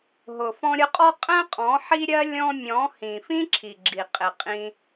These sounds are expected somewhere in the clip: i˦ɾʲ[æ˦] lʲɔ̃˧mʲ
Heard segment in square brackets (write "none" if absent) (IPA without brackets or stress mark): ɜ˦